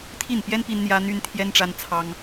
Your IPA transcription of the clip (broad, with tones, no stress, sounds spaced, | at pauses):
t̪ʰ i˥˩ n p j ɛ˥ n p i˥ n n̪ j ä˥ n̪ y˥ n t̪ʰ j ɛ˥ n ʈ͡ʂ a˥ n t͡sʰ ɑ˥ ŋ